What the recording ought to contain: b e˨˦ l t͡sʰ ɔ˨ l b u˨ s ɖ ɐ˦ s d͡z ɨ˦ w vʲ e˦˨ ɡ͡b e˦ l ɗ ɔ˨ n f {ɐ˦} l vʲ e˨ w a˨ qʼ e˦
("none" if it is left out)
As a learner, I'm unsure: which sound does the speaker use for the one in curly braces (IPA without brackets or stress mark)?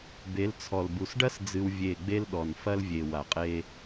ɐ˦